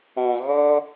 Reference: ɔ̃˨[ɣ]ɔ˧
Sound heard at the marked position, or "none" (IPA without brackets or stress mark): ɣ